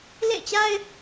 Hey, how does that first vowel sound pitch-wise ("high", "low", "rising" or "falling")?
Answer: falling